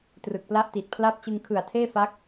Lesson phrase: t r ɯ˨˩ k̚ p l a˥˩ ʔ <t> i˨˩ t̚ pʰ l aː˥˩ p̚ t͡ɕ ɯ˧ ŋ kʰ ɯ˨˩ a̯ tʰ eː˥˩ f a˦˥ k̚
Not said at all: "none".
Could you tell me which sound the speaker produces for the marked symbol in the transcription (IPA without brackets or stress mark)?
t